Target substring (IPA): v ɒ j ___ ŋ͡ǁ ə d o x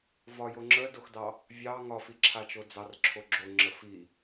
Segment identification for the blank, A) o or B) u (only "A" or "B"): A